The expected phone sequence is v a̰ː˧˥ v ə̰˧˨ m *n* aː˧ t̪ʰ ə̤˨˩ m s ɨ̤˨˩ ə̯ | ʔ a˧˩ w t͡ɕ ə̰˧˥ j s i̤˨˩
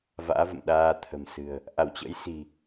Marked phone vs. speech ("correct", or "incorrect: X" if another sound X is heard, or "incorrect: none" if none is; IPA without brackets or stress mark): incorrect: ɗ